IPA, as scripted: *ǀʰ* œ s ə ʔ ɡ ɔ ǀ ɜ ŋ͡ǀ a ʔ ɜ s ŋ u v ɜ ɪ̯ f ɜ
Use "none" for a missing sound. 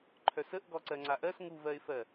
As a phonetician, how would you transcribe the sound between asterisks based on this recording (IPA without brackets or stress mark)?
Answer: ǃʰ